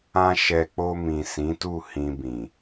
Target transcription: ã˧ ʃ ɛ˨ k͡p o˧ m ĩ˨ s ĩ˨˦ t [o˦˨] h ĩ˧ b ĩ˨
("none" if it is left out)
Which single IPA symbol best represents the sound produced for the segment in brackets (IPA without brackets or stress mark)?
u˦˨